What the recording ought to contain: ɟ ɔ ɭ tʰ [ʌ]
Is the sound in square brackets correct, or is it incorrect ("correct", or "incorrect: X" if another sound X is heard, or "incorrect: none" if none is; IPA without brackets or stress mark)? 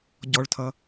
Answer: correct